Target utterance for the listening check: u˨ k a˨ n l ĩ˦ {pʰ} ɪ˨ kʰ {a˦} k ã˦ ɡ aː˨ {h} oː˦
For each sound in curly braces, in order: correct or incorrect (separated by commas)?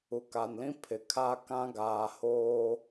correct, correct, correct